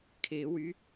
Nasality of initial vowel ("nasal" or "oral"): oral